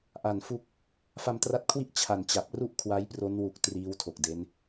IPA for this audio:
ʔa˨˩nfu˦˥k̚ | fa˧mtra˦˥t̚kʰwi˥˩ʔ t͡ɕʰa˨˩nt͡ɕa˨˩p̚ru˥˩ʔ kʰwa˦˥jpro˦˥n wu˨˩k̚ triː˦˥wtʰo˨˩k̚ de˦˥n

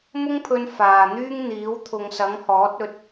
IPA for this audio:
mʊ˥ŋpʰɵ˧n faː˨n̪yː˥ŋ n̪iː˨˥wt̪ʰʊ˨˧ŋ sɐ˨˥ŋhɔː˨˥t̚ɵ˧t̚

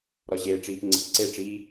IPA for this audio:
ɾɒʑeːʈ͡ʂiːpŋ͡ǀḛ ǀeʈ͡ʂiː

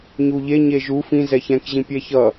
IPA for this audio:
ɲuʎe ɲeʒu fĩ zɛçɛ̃kʑĩ pʲɛçʌ

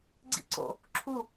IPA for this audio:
ɡ͡ǀḭǀo̰ | ǁʰu

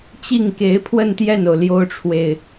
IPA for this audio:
t͡ɕi˥˩ŋke˧˥ɪ̯pʰwə˥˧n t̪jɛ˥˩no˩ʊ̯ ljo˥ʊ̯ʈ͡ʂʰwe˨ɪ̯

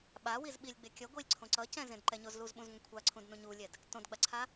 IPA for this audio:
ɓawiz ɓilʲɡ͡bekʲʌ ɡʷilʲǀʰõǀʌcɛ̃ zẽdǃɛɲozluz ɓũzŋʷɛ̃kʷʰaǀʰũd nũɲulʲɛd | tõdɡ͡baǀʰa

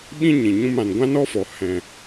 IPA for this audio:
ɓĩ˦ɲĩ˨ɲũ˧m ã˨nɡʷã˦nɔ˦fɔ˨ hɛ̃˨

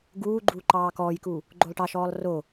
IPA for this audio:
ɡuːɡ͡ǃu ǃɑːkɔːjku | ɡ͡ǃolˠʈɑʃɔːlˠ ro

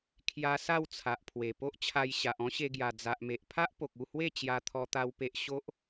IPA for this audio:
kʰja˧ sa˥˧wt͡sʰa˨ʔ pʰwe˨˩po˦ʔt͡ɕʰa˧j ɕa˨ʔɔ̃˦ɕe˧ɡja˨˩ d͡za˨ʔme˨ʔpʰa˦ʔ po˨k̚u˥˧hwe˥˧ t͡ɕja˧t̪ʰɔ˧t̪a˧w pe˨ʔ ɕo˦ʔ

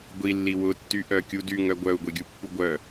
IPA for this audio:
ɡʷilːi wʊtːyʔœkʲu dyŋœ ɡʷœu̯ɡʷeɡʲupːu ɡʷœ

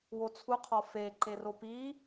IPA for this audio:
wot͡sʰuqʰɒ feǃe ropi

